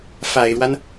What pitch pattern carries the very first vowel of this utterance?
low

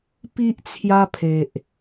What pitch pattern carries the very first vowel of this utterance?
high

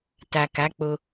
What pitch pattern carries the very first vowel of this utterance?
low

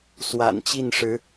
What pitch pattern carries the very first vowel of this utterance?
low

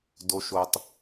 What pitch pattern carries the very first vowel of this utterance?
low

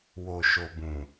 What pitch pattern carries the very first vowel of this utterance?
low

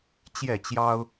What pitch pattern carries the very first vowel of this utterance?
falling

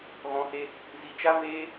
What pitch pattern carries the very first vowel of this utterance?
rising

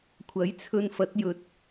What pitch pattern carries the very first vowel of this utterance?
rising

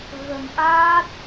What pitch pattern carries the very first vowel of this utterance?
low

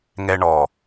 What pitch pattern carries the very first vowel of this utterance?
high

